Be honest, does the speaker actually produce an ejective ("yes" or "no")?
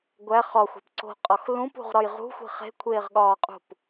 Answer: yes